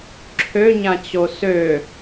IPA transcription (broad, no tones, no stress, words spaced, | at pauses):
ǁʰøɲãt͡ɕo sø